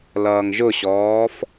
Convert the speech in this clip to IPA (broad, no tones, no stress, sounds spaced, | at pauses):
l ʌː ŋ ʒ ʊ ɕ ɔː f